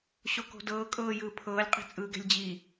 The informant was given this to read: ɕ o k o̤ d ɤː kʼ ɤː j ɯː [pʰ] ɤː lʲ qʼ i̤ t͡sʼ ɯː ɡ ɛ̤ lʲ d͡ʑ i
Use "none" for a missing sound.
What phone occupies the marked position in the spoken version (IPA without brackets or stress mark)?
pʰ